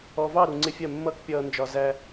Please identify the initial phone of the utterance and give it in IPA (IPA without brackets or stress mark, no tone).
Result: ɔ